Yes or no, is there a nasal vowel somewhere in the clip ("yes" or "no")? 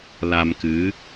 no